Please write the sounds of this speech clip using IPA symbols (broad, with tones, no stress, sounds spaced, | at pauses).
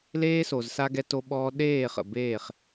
l eː˦ s o˨ z s a˦ ɡ ɛ˦ t o˦ ɓ ɔː˦ ɗ eː˦˨ χ ə̰˨ b eː˦˨ χ